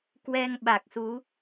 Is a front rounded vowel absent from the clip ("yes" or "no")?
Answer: yes